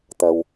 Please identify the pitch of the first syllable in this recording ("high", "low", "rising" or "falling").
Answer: low